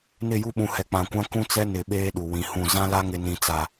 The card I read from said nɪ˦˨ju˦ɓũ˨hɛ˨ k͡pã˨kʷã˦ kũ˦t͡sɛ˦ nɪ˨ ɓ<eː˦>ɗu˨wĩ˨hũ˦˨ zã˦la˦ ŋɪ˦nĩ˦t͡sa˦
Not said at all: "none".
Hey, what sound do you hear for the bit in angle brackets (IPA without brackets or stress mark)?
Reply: eː˦